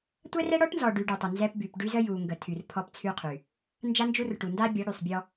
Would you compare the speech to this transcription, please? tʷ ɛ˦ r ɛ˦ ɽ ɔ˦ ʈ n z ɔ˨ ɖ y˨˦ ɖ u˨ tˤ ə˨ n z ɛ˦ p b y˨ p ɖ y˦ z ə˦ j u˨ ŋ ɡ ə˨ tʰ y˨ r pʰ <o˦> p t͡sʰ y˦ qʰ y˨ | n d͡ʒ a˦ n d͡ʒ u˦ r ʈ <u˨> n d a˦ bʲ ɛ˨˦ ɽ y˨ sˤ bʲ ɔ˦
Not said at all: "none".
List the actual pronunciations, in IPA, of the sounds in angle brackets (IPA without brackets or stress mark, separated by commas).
ɔ˦, u˨